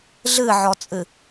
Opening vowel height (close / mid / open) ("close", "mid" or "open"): close